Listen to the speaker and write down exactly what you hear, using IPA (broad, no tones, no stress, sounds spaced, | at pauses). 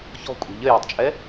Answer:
ç ɔ̤ kʷʼ e̤ ʎ ɘ j e tˤ t͡ʃʼ ɛ